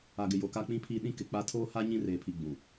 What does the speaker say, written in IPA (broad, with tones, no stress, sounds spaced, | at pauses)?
a˨ ɡ ɪ˨ j o˨ k a˦ k͡p ĩ˦ pʰ iː˦ ɗ ĩ˦ k ɪ˨ k͡p a˦ tʰ oː˦ h a˦ ɲ ĩ˦ r eː˨ pʰ i˨ ɡ͡b ũ˨